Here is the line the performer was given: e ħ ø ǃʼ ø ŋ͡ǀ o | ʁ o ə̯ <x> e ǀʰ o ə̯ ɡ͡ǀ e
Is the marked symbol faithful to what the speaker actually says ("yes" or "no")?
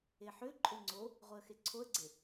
yes